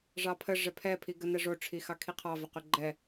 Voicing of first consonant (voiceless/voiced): voiced